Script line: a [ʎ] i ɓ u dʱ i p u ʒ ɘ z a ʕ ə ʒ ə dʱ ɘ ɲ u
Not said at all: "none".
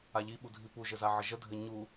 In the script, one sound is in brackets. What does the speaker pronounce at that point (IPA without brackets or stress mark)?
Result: ʎ